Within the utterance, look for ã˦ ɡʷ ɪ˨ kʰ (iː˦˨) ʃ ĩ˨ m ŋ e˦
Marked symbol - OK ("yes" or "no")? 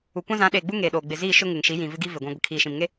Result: no